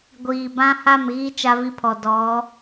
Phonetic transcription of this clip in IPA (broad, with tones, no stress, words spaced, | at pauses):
ɡʷiː˨bã˦ha˦˨m ɣi˦ t͡ʃa˦vi˦pʰɔ˨ dɔ˨˦